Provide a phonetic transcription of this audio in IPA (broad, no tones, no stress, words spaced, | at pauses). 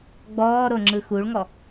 ɡ͡bɔːɾo ŋ͡ǁɯxuɭŋɔ